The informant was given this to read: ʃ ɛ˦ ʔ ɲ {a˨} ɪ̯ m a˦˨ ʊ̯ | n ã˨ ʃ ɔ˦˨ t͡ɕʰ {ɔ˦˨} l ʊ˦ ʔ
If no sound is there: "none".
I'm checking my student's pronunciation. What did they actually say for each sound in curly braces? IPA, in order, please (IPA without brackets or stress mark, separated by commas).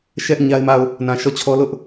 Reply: a˦, ɔ˦